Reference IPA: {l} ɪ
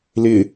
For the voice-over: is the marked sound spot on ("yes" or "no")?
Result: yes